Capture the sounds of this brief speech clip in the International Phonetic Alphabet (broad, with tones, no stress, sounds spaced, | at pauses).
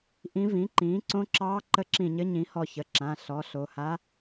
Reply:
ʔ ĩ˧˥ v ĩ˩˥ ǃ ĩː˩˥ ǀ õ˧˥ ǁ ɑː˧˥ ǃ ə˧˥ ǁ ĩ˧˩ ɲ ɘ˧˥ ɲ ĩ˩˥ h ɔ˧˩ ç ə˩˧˩ ǁ ã˩˧˩ ɬ ɔ˩˥ ɬ o˩˧˩ h a˧˥